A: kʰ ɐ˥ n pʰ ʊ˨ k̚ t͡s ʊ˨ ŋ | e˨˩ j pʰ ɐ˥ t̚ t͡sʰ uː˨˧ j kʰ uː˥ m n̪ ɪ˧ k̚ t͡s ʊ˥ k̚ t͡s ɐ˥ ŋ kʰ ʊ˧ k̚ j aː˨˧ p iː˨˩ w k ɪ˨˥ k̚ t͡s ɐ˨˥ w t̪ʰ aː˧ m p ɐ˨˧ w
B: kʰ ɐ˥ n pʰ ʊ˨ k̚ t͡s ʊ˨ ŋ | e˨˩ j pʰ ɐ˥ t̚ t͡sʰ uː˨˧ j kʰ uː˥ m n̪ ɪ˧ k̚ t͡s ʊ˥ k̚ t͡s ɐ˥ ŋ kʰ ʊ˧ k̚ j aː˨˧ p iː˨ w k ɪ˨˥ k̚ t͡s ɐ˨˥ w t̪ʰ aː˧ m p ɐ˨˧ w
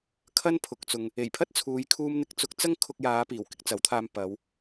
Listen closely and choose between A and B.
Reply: A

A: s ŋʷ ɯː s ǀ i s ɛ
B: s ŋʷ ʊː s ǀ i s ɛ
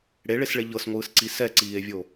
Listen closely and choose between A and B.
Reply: A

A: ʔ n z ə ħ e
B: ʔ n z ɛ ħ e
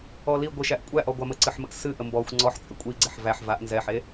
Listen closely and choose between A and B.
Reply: B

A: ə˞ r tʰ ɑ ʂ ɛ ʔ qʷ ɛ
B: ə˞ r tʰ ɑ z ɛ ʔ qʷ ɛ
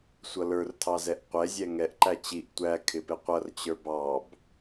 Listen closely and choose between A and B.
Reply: B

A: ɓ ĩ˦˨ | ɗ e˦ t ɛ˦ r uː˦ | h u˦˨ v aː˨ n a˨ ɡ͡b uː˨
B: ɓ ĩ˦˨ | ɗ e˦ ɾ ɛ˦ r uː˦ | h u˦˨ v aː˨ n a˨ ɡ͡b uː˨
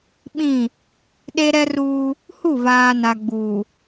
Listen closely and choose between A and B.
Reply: B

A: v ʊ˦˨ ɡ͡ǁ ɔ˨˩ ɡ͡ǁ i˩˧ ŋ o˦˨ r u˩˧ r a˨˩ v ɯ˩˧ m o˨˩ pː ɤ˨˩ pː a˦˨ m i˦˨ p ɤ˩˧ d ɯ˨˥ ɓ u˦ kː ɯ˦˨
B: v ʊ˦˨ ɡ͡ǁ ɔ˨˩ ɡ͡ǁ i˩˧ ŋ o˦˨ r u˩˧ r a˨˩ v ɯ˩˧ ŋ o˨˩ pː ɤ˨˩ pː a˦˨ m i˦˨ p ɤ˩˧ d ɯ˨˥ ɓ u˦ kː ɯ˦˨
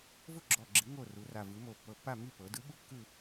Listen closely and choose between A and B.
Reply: A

